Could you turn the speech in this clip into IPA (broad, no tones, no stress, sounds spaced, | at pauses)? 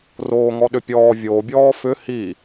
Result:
r oː ŋ ɔ ɗ ʏ pʲ ɔː vʲ o bʲ ɔː f ʏ h i